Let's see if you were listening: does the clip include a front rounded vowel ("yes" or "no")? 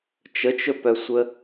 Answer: yes